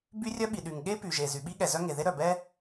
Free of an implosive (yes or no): no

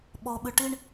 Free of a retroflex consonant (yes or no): no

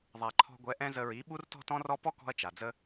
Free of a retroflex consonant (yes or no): yes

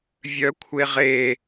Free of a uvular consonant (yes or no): no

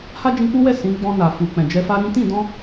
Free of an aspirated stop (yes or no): yes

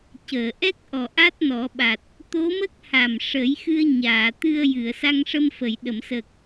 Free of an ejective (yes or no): yes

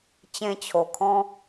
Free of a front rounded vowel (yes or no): yes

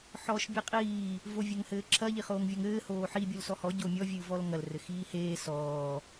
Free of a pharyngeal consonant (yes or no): no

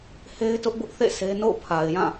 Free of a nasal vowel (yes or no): no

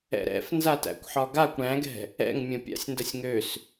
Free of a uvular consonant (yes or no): yes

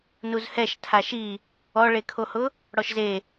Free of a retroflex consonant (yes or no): no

